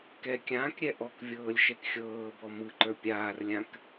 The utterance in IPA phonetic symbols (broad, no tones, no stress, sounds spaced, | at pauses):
k ɛ kʲ ãː k ɾʲ ɛ ʔ ɔ k vʲ ɤː lʲ ʃ ɛ k xʲ ɤː b ɔ m ɯ ǃ ə˞ pʲ aː r lʲ ã k